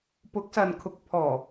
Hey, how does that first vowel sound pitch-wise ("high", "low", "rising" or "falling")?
rising